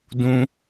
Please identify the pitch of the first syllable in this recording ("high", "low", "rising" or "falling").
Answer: high